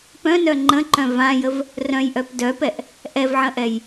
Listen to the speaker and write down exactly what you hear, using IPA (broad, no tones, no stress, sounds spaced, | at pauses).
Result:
p œ̃ n œ ŋ͡ǃ ə̃ ǃ œ̃ v ã j ə v | r œ̃ j ʔ œ p d œ p ɛ ʔ | ʔ ɛ v ʕ ə̃ ʔ ɛ j